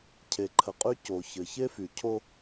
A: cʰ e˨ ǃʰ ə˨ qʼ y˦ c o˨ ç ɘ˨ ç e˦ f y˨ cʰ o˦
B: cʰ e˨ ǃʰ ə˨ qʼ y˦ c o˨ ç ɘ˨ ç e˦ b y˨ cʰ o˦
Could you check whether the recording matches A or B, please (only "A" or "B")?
A